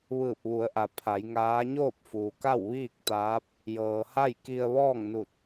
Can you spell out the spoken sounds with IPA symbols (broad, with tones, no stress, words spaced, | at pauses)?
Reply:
ʋɯː˧˩p̚ʋu˩˧ə̯ʔa˩ pʰa˩˧jŋaː˧˥ ɲoː˥˨p̚fuː˩ka˥˨w ʋiː˥˨k̚t̪aː˧˥p̚ | jɤː˩ha˥˨j ki˧ə̯ʋɔː˥˨ŋnu˧˩t̚